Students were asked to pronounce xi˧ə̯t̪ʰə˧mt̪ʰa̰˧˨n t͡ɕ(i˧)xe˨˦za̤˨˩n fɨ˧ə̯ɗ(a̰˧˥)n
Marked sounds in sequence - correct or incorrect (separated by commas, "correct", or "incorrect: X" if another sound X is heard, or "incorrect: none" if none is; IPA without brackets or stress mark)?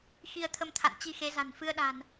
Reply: correct, incorrect: a̤˨˩